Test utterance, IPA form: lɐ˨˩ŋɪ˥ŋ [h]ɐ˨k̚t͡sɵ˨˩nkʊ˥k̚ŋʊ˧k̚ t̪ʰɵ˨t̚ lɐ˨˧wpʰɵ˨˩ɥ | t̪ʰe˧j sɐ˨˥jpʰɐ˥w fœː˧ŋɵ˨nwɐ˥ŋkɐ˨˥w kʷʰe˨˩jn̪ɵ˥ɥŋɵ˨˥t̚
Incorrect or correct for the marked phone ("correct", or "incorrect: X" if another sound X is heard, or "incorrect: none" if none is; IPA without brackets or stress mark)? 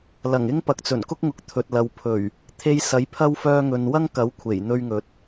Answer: incorrect: p